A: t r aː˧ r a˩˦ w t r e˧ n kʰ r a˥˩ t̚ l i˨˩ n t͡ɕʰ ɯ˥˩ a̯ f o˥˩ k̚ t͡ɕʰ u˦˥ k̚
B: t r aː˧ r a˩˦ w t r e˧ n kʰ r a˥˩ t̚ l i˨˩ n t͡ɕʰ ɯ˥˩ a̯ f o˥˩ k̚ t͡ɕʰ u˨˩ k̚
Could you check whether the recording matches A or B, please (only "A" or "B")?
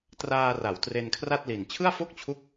A